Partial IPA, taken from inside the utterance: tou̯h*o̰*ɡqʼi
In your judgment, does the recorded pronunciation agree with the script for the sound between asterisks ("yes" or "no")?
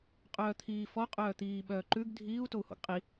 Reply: yes